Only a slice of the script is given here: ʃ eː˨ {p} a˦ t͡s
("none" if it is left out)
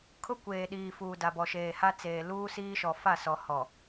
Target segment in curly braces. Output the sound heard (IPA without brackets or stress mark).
h